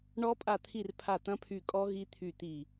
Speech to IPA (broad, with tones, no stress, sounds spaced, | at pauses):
ɳ ɔ˦˥ pʼ a˦˨ t̪ʰ i˦˨ r pʰ a˦˨ t̪ ɐ̃˦˥ pʰ y˦˨ kʼ ɔ˦˥ ɣ i˦˥ t̪ʰ y˦˨ t̪ i˦˨